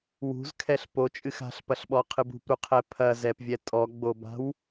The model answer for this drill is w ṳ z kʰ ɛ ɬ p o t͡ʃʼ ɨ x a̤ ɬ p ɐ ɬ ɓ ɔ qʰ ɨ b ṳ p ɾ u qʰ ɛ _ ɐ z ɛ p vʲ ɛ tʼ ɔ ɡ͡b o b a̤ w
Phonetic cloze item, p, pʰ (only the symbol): pʰ